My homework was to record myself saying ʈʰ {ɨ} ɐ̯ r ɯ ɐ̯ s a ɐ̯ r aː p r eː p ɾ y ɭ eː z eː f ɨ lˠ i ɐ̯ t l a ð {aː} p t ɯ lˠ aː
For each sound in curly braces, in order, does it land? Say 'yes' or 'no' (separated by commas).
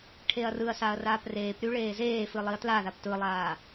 no, no